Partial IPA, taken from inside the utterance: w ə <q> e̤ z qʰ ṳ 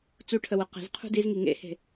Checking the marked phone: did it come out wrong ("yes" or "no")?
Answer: no